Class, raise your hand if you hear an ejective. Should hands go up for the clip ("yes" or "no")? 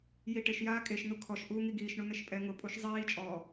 yes